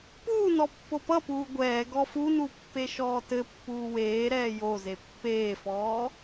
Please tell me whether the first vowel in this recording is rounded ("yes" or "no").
yes